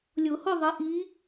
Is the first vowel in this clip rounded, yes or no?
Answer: yes